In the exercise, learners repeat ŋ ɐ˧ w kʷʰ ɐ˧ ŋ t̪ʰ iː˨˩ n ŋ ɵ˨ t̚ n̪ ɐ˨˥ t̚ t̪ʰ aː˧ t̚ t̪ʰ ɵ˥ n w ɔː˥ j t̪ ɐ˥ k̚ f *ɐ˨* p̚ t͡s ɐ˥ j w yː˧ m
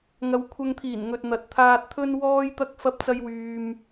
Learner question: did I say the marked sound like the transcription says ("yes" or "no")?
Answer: no